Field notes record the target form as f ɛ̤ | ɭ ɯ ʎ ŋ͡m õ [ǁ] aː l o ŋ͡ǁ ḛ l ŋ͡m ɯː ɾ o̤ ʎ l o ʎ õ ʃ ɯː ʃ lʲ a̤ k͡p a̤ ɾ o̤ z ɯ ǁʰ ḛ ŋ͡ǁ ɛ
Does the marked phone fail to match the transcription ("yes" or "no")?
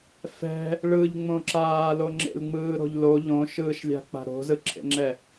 no